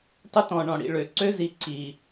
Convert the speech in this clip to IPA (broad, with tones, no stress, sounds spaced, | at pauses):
tˤ ə˦ t ɔ̃˨ ɳ ɔ̃˨ ɽ ḭ˨ ɭ ø˨ ǀ ø˦ z i˨ ǀ i˨